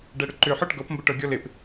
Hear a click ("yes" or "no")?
yes